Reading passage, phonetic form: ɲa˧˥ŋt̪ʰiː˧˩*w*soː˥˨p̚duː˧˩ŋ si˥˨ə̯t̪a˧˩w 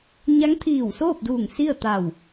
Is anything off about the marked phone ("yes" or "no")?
no